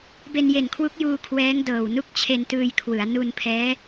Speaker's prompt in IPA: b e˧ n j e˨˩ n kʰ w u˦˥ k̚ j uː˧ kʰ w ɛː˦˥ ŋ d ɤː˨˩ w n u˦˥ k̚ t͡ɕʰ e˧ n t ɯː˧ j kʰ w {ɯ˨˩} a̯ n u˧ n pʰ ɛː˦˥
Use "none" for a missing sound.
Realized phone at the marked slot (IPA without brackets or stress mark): ɯ˩˦